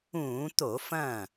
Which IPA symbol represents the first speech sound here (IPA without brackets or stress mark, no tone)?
ũː